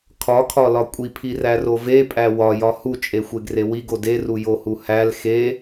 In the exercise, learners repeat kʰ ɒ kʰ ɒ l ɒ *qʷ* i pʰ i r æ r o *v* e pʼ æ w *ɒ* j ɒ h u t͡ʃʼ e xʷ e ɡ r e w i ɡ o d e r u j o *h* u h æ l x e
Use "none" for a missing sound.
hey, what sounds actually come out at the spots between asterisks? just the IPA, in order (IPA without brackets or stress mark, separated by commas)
kʷʼ, v, ɒ, h